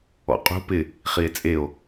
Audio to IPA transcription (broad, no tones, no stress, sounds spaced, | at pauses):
ɔ̰ qʼ ṳ p ɪ | χ i e̯ t͡sʼ e o̯